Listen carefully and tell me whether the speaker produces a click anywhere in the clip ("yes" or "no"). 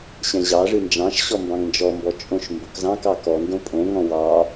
no